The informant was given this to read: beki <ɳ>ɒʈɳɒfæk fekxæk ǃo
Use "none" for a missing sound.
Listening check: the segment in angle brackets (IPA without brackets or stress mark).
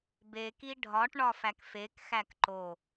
ɖʱ